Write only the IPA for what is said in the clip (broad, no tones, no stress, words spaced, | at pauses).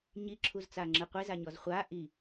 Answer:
ɲiǁʰuzt͡saŋ͡ǁɯ qʷezaɲɔz χʷa ʔi